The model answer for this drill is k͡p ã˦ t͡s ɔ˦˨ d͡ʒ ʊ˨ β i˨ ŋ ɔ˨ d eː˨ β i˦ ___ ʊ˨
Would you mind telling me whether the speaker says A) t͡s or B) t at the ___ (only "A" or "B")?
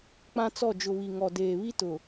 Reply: B